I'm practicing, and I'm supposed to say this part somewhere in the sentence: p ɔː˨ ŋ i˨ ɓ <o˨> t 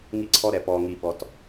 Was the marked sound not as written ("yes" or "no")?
yes